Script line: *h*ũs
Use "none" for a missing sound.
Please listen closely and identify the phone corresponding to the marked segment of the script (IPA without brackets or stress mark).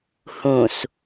h